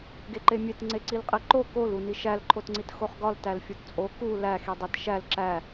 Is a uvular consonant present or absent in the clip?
present